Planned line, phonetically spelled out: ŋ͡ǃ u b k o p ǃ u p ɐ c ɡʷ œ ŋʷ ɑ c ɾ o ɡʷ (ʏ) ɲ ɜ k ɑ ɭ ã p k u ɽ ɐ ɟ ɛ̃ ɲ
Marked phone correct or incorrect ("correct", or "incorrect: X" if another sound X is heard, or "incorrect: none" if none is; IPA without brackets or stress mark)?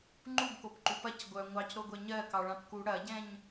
incorrect: ɛ